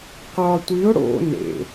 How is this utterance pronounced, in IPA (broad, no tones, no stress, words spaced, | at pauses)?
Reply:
qɒ tʷiʊ̯ ɽo̰ nḛ